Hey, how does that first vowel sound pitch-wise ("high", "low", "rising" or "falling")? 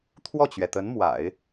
falling